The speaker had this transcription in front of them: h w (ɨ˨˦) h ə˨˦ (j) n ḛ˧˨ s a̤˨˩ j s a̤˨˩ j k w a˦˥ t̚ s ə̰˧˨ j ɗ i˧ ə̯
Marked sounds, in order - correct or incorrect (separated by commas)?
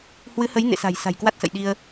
correct, correct